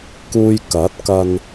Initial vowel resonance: oral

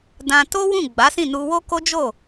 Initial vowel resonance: nasal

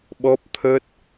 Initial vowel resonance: oral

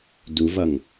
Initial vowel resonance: oral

